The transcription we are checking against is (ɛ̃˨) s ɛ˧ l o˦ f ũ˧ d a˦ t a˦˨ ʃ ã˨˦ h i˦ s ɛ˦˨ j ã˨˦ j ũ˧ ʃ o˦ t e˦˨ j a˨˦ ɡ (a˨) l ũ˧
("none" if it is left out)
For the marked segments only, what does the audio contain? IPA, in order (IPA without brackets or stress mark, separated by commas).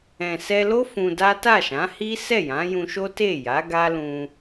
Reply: ɛ̃˨, a˦